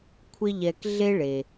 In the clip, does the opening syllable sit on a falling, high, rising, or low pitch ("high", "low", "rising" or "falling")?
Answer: high